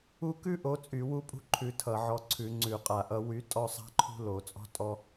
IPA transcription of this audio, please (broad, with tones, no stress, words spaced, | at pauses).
u˦˨kʉ˦ʔo˨˦ t͡sʼy˧˩˧wu˦pʼṳ˦ ǃʰʉ˨˦tʰʌ˧˩˧ʕɔ˨˦ǀʰʉ˧˩˧ ŋ͡ǀʉ˧˩˧qʼa˧˩˧ʔʌ˨˦ wy˨˦tʼɔ˦˨sˤa̤˦ ǃʰṳ˦lo˧˩˧t͡sʼɔ̤˦ tʼɔ˦